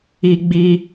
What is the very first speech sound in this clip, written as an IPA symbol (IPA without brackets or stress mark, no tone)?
i